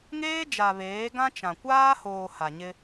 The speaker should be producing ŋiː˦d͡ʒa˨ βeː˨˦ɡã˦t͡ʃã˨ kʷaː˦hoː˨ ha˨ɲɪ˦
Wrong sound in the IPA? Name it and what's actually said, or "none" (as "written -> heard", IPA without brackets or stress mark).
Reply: iː˦ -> eː˦